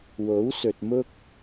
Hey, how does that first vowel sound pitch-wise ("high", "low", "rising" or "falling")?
rising